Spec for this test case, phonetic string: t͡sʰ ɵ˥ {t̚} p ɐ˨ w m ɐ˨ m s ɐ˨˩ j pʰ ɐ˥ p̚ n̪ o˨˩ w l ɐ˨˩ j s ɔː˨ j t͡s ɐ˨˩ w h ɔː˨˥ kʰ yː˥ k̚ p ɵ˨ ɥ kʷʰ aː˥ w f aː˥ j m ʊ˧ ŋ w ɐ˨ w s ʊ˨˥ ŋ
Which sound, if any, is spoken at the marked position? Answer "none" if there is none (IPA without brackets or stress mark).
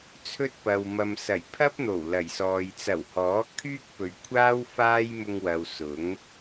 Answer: t̚